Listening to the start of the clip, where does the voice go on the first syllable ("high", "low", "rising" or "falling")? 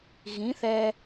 rising